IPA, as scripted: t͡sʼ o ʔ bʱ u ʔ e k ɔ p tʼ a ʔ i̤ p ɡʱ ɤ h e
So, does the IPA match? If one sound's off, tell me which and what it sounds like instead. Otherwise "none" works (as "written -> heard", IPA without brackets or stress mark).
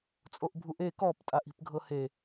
none